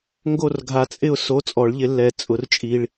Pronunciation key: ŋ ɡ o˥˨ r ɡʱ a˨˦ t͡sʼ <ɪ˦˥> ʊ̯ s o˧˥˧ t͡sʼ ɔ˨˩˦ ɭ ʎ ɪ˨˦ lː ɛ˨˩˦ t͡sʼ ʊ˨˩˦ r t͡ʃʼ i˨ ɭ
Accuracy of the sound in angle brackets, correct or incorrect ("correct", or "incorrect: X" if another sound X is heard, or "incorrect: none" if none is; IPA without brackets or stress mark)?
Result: incorrect: ɪ˥˨